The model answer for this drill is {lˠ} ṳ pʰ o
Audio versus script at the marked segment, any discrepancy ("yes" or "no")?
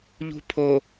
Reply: yes